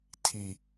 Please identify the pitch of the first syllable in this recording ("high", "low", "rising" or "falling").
low